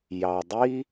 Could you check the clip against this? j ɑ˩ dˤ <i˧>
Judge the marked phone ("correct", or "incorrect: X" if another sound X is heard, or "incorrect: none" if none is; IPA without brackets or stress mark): incorrect: i˥